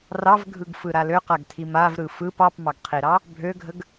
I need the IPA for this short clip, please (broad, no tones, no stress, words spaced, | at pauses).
rɑvɡʱɯɡfɯɾa løqaɡtʰi mavɾɯ fɯp ɑpmɑɡqʰiɾɑ | bʱøɡʱəɡ